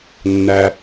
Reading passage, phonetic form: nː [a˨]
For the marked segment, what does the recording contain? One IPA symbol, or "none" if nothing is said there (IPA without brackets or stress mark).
æ˨